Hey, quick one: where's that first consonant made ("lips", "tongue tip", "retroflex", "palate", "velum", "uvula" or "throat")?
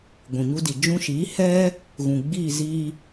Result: velum